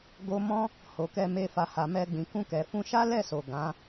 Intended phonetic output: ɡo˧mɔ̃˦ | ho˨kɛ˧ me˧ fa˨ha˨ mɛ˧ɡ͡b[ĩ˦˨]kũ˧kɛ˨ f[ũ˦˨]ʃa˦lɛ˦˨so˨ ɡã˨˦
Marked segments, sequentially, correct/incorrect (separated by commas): incorrect, incorrect